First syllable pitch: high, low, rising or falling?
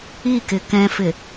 falling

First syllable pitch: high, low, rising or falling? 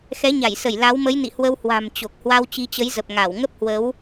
rising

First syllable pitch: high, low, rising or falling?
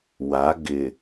rising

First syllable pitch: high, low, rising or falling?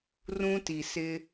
high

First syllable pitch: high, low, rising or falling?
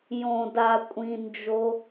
low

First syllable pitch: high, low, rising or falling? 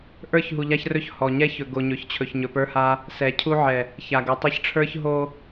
falling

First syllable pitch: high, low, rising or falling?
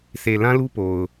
low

